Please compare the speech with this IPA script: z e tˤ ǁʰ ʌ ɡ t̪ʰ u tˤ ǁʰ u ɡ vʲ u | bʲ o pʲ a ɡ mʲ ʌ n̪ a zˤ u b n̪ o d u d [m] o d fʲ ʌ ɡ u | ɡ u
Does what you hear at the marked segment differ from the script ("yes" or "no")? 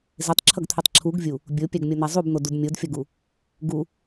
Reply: yes